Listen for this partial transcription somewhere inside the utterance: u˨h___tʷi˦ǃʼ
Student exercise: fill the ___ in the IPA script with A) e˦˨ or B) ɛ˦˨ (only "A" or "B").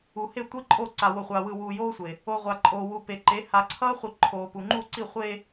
A